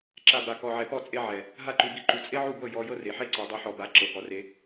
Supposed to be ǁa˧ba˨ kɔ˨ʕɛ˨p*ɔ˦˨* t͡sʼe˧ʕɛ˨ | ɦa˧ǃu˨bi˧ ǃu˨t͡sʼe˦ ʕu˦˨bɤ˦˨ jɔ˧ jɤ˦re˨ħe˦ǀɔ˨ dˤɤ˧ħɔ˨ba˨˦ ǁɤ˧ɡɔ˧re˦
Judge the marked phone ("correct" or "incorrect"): correct